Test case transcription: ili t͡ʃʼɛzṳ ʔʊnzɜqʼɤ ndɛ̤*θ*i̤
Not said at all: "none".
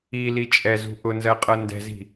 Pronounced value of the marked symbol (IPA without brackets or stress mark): z